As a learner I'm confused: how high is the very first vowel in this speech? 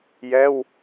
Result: mid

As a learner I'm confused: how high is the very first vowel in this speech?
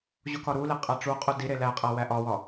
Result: high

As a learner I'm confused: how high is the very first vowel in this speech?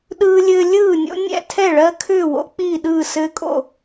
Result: high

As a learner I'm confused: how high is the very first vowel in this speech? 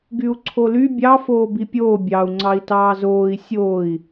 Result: high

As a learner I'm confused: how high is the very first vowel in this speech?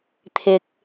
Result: high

